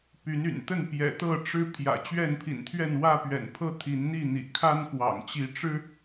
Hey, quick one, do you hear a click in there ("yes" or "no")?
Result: no